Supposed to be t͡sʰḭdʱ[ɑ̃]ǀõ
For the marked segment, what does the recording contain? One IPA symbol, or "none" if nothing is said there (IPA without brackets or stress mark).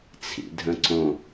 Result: ə̃